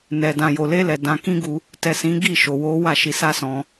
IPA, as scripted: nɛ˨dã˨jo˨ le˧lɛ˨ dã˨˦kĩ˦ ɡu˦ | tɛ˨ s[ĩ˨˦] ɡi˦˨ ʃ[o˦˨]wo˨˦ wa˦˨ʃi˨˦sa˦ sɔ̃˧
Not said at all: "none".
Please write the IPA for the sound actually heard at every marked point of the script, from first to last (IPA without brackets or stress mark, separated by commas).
ĩ˨˦, o˨